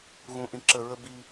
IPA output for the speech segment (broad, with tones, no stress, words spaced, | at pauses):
ɣũ˨ ʔĩ˨ǁə˨ ɹə˦bi˦